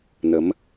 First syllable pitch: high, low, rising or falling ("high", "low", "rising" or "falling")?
rising